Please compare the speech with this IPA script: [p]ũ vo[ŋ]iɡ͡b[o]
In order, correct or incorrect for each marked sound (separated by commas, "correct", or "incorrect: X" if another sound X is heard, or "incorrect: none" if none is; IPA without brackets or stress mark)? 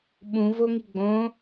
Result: incorrect: ɓ, correct, incorrect: õ